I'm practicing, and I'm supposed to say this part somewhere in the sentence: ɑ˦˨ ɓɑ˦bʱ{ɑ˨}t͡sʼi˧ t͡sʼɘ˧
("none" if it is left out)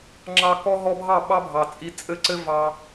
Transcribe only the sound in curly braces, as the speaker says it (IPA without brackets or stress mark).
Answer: ɑ˨